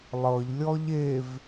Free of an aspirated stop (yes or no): yes